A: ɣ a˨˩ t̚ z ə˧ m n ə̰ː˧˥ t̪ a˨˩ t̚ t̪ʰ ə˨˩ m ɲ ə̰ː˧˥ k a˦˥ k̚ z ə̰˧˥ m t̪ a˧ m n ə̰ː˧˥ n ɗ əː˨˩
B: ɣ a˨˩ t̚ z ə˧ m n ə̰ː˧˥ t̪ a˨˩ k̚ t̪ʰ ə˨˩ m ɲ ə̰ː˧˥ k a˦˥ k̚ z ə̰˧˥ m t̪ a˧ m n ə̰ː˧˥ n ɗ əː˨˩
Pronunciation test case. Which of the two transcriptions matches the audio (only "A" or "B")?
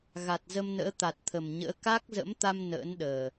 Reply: A